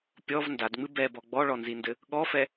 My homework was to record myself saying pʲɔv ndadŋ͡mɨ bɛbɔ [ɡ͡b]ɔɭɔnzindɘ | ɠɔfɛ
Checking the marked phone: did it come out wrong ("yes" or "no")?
no